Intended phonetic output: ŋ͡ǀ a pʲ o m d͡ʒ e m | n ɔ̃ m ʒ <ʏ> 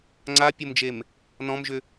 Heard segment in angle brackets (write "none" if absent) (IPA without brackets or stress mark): ʏ